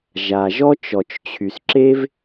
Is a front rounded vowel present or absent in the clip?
present